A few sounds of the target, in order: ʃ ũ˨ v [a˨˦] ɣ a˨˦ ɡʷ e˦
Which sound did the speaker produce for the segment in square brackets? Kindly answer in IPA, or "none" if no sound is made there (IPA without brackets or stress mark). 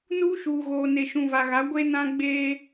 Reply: a˨